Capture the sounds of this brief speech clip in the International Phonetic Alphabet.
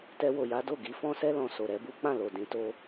t ɛ˧ w o˨ j a˨˦ d o˦˨ ɡ i˨˦ f ɔ̃˦ s ɛ˦ l ɔ̃˧ s o˨ ɾ ɛ˧ b u˦ k͡p ã˦˨ l o˨ d ĩ˨˦ t o˦

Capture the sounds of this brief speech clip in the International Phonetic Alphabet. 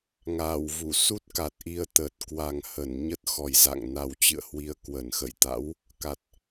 ŋ aː˧˩ w v u˧˩ s u˦˥ t̚ k a˨˩ t̚ ʔ i˧ ə̯ t̪ ə˨˩ t̚ k w a˨˩ ŋ h ə˧˩ n ɲ ə˦˥ t̚ x ɔ˨˩ j z a̰˧˨ ŋ n a˨˩ w t͡ɕ ɨ̰˧˨ ə̯ h w i˨˦ ə̯ k w ə˧˩ n x ə̰˧˨ j t̪ a̰˧˥ w | k a˨˩ t̚

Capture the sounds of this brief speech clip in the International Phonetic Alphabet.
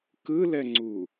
k ɯ l ɛ ŋ͡ǀ u

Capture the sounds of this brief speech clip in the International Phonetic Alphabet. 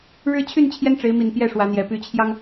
ɻ ɻ̩˦ t͡ɕʰ y˥˨ n t͡ɕʰ j ɛ˦ n ʈ͡ʂ e˨˦ ɪ̯ m i˨˩ n p j ɛ˥˨ ʂ w ä˨˦ n̪ j ɛ˨˩ p y˨˦ t͡ɕʰ j ɑ˦ ŋ

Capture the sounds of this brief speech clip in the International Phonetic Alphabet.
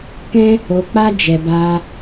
k ɛ̃˦ | o˧ k͡p a˦ d͡ʒ ɛ˧ b a˧

